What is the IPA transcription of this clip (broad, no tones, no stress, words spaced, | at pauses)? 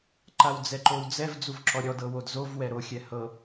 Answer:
ǃawd͡zɛǃowd͡zɛv d͡zuvǁɔɾʲɔd ɤwodzov wɛɾo xʲɛhɤ